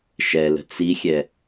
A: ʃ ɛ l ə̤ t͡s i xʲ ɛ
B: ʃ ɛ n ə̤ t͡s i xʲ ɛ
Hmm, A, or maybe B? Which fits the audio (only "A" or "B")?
A